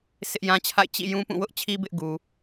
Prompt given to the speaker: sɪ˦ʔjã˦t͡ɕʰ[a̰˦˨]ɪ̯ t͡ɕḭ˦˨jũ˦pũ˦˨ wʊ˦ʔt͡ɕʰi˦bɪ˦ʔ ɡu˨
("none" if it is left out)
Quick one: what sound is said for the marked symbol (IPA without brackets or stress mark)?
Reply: a̰˦˨